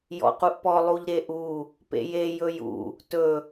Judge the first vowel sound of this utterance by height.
mid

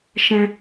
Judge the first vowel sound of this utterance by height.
mid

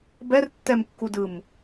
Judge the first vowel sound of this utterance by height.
mid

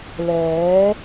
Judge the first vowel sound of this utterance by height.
mid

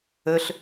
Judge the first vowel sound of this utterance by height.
mid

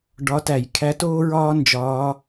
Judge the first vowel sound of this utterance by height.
low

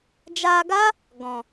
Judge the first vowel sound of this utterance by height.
low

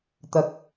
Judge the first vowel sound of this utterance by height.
low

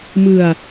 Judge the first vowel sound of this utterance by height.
high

